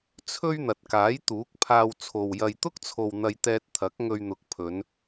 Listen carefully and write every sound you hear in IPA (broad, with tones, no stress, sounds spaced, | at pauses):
t͡sʰ ɵ˥ ɥ n̪ ɐ˨ t̚ k aː˨˥ j t̪ uː˨˥ k̚ pʰ aː˧ w t͡sʰ o˨ w j ɐ˨ j t̪ ʊ˥ k̚ t͡sʰ o˨ w n̪ ɐ˧ j t̪ ɛː˧ t̚ t̪ʰ ɐ˨˥ k̚ ŋ ɵ˧ ɥ n̪ ʊ˨˥ k̚ pʰ ɵ˨˧ n